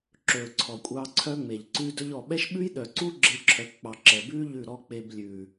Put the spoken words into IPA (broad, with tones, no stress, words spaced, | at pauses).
ǁɵː˨ǀʰɔ˨kʷʼɑː˧ ǀʰœ˦ŋ͡me˨ʎǀʉ˦ dɵ˧ʎɔ˨ɓɛ˦ʃ ɓʉ˦jɗœ˨ǀu˦ ɡ͡ǁe˦ǁʰœ˧kk͡pɑ˧ ǁɛ˨bʉː˦ ʎʉ˦˨ɾɔ˦ k͡pe˧blʲʉː˨